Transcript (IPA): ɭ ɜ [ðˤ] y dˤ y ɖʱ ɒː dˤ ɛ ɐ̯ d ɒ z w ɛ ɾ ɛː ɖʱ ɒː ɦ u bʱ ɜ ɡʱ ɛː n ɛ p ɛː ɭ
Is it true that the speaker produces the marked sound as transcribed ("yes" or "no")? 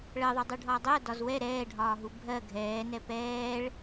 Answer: yes